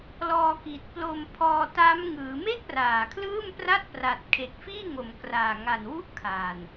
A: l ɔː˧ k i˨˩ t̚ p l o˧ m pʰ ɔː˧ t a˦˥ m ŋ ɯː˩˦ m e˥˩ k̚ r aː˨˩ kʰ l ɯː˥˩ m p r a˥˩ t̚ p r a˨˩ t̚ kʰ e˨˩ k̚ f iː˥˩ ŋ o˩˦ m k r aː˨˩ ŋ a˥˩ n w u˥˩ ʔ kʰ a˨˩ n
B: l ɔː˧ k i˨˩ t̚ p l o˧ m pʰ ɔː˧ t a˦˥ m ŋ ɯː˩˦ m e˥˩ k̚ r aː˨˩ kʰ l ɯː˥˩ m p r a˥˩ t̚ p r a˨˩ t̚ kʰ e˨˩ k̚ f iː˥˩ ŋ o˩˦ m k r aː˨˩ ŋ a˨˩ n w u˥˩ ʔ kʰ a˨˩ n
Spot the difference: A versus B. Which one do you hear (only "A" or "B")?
B